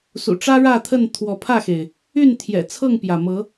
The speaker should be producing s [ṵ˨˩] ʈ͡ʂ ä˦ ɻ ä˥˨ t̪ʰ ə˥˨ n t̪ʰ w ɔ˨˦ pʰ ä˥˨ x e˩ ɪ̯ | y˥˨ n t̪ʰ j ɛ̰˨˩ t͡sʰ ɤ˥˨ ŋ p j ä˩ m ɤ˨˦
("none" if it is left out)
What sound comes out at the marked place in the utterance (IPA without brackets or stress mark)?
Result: ṵ˨˩